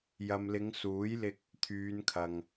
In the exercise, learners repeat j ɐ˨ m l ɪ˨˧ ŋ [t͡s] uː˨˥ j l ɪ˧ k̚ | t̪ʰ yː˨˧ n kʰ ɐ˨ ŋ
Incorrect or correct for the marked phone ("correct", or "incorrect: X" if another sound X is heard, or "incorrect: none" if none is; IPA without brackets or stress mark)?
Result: incorrect: s